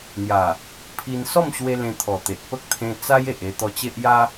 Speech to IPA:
n̪ja˨˩ | pʰi˧n sɔ˥˧mɕwe˧ lẽ˧t̪ʰɔ˨˩ t̪e˨ʔ pə˦k̚t̪ʰẽ˧t͡sa˦j e˨ʔe˧t̪ɔ˧t͡ɕe˦ʔ ja˦

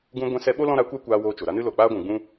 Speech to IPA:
ɡũ˧ɡʷɛ̃˧sɛ˧ɓo˦ lɔ̃˦ɾa˨˦kʷa˦kʷaː˧ woː˧t͡ʃo˨ɾa˦nɨ˦ lo˨k͡paː˦ɡʷũ˨ɡ͡bũ˦

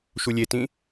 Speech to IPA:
ʃulʲetĩ

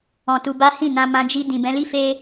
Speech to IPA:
ɔ̃˧tu˧ba˦ hĩ˦˨nã˧ mã˧d͡ʒi˧ dĩ˨bɛ̃˨˦li˦ fe˦

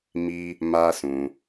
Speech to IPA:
mi˦ | ma˦sũ˧

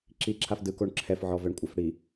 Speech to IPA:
ǁiǁʰaf dɯkoɳ ǁʰɛfʕɔvɛɳkʷʼaf ɽi

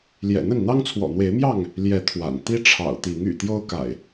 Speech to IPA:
ljɛ̰˨˩n̪ə˥˨n n̪ɑ˦ŋt͡sʰwɔ̰˨˩n̪we˨˦ɪ̯mjɑ˥˨ŋ | ljɛ˨˦ t̪ʰwa̰˨˩n t̪i˦ʈ͡ʂʰɑ̰˨˩ʊ̯t̪i˨˦ŋ y̰˨˩ t̪jo˦ʊ̯ka̰˨˩ɪ̯

